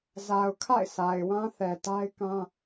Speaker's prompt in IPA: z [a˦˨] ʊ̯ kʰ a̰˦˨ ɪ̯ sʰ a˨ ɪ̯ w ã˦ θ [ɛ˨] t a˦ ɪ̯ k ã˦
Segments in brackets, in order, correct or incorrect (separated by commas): incorrect, correct